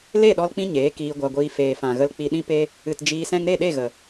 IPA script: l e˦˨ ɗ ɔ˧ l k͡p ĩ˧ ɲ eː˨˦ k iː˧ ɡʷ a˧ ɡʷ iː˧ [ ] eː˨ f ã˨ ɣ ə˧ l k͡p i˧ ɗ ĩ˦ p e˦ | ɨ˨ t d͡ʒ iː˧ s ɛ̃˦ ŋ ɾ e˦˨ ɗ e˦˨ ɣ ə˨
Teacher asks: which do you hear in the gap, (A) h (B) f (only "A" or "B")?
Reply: B